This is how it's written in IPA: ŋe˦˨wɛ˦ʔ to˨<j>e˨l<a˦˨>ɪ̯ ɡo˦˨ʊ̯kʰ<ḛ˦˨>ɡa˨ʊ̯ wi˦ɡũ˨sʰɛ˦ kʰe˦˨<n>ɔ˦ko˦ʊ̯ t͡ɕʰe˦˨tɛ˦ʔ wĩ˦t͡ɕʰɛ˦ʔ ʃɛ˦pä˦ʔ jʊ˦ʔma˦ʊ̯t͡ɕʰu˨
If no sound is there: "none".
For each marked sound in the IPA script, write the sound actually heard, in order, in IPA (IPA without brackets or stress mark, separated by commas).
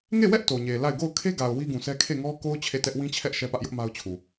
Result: ɲ, a˦˨, e˦, ŋ